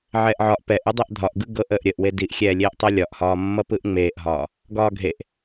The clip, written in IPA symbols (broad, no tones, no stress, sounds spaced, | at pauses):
ʕ ɛː ʔ ʕ ɒ ʔ p ɛ ʔ ɯ dˤ e ʔ dʱ ɒ ʔ ɡ ɯ ɡ ɤ ʔ əː ʔ ɾʲ ə ʔ w e d i ʔ xʲ ɛː lʲ eː ʔ tˤ ɤ lʲ ɒ ʔ h ɒː mː ʌ p ɯ ʔ ŋ͡m eː ʔ ɦ ɒː | ɡ ɒː ɡʱ e ʔ